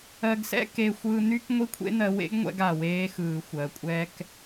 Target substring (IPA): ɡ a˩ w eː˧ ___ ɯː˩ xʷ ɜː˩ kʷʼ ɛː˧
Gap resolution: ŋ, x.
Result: x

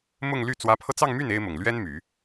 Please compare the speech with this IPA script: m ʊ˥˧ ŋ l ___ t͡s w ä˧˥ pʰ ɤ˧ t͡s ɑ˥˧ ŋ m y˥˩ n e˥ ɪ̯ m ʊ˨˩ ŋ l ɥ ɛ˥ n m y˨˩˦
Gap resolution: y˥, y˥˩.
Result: y˥˩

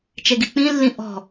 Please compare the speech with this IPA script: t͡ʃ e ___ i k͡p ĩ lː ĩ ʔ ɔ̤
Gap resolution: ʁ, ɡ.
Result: ɡ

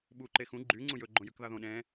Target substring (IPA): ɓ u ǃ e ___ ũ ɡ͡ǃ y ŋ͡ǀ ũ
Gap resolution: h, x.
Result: x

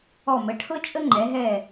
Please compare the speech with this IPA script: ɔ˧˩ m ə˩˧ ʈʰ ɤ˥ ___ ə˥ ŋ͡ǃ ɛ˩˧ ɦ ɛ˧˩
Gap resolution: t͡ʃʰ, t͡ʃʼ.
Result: t͡ʃʼ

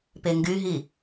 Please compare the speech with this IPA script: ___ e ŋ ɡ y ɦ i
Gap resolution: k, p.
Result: p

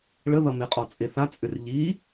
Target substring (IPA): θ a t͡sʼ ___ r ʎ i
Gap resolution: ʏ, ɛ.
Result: ʏ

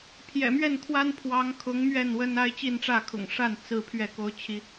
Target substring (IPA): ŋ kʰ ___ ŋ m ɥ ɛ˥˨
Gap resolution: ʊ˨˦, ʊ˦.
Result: ʊ˨˦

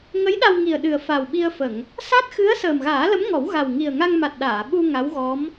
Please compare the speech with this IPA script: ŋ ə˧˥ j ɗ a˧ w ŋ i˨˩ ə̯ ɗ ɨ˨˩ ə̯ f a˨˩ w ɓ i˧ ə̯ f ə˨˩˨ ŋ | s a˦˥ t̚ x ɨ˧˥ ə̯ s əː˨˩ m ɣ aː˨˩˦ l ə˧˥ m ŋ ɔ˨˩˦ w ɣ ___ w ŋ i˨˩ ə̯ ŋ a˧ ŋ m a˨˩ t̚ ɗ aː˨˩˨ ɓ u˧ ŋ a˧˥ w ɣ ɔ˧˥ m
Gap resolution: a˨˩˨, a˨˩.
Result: a˨˩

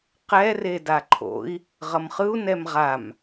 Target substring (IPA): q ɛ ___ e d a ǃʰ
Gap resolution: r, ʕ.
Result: r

